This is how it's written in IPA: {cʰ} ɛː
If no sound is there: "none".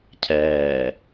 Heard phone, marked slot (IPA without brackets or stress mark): cʰ